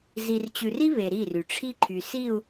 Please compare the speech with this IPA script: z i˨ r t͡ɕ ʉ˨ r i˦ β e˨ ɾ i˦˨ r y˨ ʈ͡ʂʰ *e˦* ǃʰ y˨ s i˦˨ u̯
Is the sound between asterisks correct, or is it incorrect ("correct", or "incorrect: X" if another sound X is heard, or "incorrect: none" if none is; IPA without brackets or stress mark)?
incorrect: i˦